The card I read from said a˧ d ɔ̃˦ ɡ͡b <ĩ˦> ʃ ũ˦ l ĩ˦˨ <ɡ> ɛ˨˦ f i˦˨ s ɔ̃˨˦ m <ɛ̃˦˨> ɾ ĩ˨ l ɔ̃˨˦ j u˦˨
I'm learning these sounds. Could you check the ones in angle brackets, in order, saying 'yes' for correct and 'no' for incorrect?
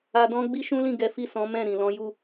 no, yes, yes

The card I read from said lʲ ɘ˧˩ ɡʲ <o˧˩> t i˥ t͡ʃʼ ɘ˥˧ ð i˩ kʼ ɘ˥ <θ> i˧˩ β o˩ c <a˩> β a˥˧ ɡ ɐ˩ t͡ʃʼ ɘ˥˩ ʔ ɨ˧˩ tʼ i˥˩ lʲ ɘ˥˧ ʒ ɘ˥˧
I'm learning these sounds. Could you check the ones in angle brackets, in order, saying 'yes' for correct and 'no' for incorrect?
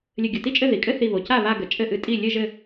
yes, yes, no

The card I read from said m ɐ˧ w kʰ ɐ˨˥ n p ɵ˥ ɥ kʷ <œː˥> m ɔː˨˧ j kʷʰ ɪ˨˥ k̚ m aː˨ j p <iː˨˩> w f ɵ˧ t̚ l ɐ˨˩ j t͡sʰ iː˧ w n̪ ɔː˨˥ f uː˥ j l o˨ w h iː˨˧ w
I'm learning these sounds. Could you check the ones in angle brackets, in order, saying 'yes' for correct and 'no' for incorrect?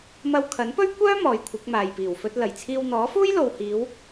yes, yes

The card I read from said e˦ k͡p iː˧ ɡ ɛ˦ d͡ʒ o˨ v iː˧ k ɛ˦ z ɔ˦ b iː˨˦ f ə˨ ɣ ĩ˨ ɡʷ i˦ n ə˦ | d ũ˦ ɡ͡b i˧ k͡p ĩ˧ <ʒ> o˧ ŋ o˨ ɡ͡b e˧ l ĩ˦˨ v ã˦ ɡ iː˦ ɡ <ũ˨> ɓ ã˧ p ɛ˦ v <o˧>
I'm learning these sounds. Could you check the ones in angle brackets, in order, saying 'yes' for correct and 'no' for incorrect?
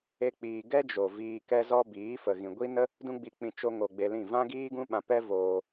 no, no, no

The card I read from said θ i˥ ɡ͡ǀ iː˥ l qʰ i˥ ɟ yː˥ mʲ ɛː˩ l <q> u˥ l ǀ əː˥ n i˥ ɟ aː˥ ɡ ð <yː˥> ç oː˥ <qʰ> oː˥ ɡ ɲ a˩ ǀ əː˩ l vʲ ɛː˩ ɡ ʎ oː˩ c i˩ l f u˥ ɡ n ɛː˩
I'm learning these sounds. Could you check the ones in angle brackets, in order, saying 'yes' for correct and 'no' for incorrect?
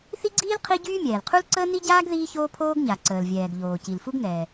no, no, no

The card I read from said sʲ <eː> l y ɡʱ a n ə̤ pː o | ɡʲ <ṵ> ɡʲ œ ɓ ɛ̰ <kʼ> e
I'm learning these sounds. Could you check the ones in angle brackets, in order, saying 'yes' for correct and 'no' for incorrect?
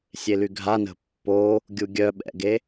no, no, no

